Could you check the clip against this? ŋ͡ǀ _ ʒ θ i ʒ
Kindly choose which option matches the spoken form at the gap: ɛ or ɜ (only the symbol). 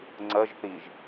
ɜ